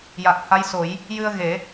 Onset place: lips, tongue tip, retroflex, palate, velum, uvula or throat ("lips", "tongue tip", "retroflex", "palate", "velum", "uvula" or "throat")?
palate